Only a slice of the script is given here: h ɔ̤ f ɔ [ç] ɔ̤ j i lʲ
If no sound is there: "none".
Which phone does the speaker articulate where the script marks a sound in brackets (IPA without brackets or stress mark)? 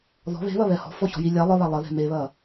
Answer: ç